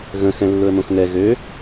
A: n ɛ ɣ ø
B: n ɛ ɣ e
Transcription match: A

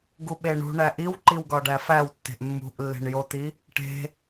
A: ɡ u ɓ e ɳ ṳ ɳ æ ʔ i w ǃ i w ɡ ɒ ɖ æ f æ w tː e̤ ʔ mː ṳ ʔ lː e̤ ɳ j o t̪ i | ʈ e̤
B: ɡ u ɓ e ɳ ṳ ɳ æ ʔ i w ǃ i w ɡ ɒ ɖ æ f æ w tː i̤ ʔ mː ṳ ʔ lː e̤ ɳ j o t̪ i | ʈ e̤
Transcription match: A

